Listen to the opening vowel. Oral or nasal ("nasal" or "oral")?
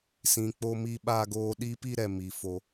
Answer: nasal